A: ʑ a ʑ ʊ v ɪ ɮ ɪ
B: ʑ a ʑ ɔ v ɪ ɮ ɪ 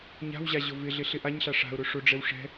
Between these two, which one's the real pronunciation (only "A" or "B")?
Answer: A